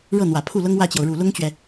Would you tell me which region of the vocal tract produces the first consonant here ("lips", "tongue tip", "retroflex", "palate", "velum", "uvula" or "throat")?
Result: retroflex